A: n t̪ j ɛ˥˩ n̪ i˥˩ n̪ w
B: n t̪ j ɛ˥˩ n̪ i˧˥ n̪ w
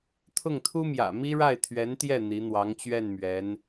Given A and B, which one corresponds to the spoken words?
B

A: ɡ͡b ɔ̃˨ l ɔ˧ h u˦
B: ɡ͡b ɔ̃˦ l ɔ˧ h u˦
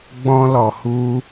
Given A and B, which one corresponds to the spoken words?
B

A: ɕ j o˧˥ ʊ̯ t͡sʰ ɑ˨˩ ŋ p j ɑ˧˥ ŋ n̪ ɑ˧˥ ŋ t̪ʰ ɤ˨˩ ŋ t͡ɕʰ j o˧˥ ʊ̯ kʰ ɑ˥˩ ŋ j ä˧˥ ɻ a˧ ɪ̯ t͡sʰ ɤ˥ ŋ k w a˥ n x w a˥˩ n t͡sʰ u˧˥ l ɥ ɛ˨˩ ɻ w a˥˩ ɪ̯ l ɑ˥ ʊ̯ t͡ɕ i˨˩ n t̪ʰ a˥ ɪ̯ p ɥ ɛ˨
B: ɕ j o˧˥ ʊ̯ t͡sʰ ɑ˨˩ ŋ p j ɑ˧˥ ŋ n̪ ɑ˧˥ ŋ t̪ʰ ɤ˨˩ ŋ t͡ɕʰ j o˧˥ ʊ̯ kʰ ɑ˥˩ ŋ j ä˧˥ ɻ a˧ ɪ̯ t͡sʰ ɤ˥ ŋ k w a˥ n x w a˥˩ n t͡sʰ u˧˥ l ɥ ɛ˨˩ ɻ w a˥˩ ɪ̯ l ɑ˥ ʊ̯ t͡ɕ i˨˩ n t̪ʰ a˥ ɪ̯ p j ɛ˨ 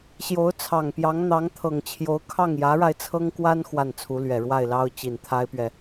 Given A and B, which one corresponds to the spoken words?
A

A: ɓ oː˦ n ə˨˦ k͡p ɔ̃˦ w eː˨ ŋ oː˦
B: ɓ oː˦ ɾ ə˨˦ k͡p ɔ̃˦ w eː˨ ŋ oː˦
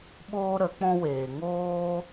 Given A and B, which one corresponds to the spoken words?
B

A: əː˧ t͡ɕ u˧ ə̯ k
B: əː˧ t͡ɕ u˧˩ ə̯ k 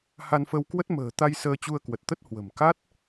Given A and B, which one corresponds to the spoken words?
A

